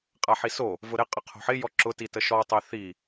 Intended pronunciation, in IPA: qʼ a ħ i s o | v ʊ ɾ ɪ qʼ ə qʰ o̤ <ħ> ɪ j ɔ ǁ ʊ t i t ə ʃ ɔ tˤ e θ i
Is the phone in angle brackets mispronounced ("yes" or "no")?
no